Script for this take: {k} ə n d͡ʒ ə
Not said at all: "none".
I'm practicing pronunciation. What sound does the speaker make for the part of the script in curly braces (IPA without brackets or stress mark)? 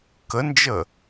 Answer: k